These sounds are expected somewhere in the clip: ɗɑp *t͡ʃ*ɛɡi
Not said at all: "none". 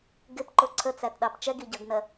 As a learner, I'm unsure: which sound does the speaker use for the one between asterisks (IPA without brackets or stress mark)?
t͡ʃ